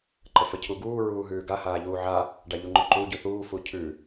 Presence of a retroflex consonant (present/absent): present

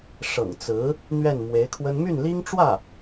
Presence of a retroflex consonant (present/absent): present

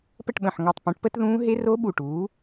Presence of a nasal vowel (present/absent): present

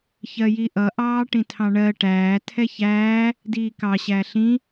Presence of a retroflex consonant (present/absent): present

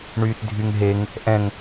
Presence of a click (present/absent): absent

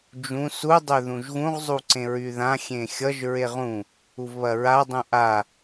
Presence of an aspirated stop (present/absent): absent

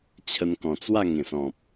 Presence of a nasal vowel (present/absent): present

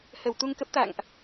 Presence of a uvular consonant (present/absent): absent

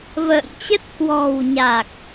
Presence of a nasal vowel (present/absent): absent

